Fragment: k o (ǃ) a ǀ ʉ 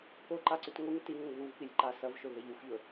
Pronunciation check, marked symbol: correct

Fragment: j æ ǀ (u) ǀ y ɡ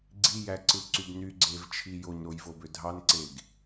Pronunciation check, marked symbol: incorrect: ɯ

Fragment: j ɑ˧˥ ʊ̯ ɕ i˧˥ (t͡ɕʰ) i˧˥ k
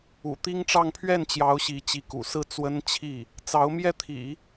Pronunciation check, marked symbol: incorrect: t͡ɕ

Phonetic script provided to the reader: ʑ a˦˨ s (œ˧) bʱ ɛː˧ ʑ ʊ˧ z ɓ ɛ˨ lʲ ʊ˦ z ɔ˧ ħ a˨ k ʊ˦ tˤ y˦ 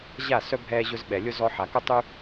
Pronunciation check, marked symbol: correct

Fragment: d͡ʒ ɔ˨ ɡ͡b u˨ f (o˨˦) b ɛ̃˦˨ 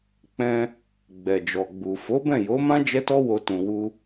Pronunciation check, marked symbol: correct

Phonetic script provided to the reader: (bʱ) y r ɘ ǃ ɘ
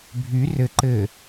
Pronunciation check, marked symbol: correct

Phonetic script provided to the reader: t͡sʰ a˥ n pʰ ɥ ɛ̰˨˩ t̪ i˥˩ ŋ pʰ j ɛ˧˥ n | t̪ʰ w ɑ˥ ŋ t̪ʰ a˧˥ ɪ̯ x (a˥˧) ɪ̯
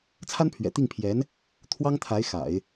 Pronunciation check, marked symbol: incorrect: a̰˨˩˦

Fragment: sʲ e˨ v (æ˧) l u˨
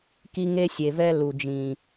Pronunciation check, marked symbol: incorrect: ɛ˧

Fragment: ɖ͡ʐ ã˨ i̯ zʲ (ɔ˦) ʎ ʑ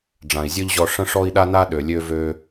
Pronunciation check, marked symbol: correct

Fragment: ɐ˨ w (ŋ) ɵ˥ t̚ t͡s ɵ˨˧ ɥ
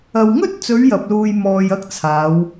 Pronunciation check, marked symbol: correct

